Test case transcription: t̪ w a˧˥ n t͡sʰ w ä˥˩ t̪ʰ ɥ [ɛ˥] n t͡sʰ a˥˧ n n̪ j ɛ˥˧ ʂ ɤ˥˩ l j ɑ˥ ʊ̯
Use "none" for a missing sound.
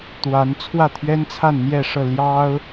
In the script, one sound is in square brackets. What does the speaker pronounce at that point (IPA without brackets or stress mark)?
ɛ˥